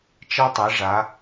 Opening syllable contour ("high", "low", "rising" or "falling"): high